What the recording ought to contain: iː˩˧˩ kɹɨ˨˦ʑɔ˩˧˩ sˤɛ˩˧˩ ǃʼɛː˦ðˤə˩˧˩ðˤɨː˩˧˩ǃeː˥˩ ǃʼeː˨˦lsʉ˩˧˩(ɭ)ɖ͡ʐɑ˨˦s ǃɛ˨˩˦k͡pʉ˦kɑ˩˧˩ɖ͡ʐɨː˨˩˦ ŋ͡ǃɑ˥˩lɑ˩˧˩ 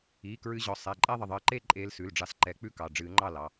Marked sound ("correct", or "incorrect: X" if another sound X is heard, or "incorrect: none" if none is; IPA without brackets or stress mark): incorrect: l